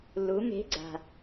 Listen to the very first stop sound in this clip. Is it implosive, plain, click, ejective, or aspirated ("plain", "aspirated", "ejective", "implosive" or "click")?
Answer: click